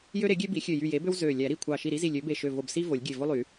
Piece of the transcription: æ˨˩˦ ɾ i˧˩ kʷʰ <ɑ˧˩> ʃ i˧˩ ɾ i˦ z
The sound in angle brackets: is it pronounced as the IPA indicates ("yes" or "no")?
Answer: yes